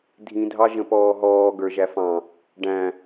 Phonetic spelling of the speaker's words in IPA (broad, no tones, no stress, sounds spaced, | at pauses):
dʱ ĩ dʱ ɑ ʒ ə̃ p ɔː ɦ ɔː ɡ ə˞ ʒ æ f ɑ̃ | ɖ æ̃